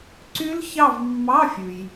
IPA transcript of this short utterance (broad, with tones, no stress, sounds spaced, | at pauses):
ǀ y˦˥ l ç ɑ˦˨ v mː ɑ˧˥˧ fʲ ʉ˩ j